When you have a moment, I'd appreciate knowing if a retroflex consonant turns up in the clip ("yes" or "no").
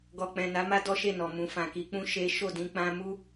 no